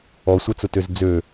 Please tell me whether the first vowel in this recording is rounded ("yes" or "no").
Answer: yes